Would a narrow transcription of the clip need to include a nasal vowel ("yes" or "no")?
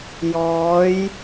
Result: no